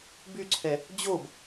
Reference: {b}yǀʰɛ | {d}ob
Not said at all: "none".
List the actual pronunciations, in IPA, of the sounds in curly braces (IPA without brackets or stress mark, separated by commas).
b, d͡ʑ